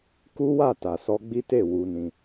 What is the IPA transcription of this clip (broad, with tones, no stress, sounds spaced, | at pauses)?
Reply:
k u˦ w a˦˨ t a˨ s ɔ˧ ɡ͡b i˦ t e˦˨ w u˧ n ĩ˧